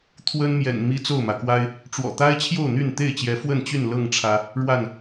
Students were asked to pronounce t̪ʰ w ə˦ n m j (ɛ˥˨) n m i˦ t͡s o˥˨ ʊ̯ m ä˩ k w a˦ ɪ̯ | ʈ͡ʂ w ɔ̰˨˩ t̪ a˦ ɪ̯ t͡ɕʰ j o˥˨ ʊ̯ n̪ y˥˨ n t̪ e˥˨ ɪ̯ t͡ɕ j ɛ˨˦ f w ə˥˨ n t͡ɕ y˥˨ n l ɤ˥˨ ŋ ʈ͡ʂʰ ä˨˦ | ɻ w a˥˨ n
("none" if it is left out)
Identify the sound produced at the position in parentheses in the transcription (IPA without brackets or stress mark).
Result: ɛ̰˨˩